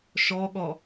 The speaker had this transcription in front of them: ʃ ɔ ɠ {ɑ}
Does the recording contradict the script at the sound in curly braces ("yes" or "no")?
yes